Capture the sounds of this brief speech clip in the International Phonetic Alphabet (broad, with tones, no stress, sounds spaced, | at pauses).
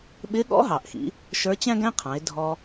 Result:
ɓ ɪː˧˥ ɠ ɔ̰˧˥ ɦ ɑ˩ ʔ x ḭ˩˧ | ʃ ə˞˧˥ t͡ɕ æ̃˥ ɡ æ̃˥ qʰ ɑ̃˩˧ ɪ̯ dʱ ɔ˧